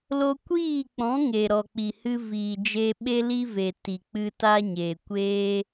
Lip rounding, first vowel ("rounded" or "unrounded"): rounded